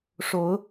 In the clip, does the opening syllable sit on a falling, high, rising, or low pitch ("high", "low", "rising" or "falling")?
rising